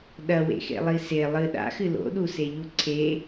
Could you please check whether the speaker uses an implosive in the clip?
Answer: yes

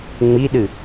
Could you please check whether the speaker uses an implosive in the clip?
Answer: yes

